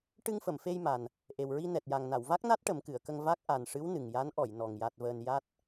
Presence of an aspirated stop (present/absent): absent